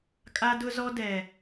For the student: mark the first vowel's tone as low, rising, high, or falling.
high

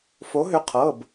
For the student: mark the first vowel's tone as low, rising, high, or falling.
rising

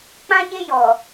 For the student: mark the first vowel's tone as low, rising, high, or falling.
high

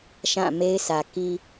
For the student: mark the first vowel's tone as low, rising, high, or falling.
falling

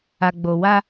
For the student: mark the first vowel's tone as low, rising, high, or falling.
low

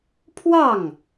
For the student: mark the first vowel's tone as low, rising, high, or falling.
falling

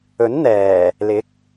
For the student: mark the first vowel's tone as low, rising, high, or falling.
rising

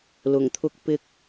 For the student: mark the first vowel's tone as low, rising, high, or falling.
low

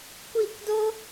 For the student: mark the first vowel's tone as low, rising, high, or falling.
falling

